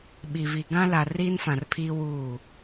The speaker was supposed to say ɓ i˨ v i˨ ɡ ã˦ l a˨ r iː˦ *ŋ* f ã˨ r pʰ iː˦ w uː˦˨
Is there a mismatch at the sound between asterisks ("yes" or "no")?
yes